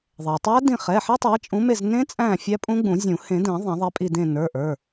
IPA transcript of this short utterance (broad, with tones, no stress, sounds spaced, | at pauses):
ðˤ ɛ˩ tˤ æ˦˥ d ĩ˦˨ χ ɛ˩˧˩ ħ i˦˥ tˤ æ˨˦ t͡ʃʼ ũ˨˦ m e˦˨ z n ẽ˦˥ t͡sʼ æ̃˦˨ fʲ æ˦˥ pʼ ũ˦˥ ɡ͡b ũ˨˩˦ zʲ ũ˨˩˦ h ẽ˨˩˦ d ɛ̃˨˩˦ ðˤ æ̃˨˩˦ ðˤ ɛ˨˦ pʼ i˦˨ d ẽ˦˨ n ə˞˩˧˩ ʔ ə˞˩˧˩